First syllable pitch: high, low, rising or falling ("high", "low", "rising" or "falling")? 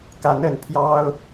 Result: rising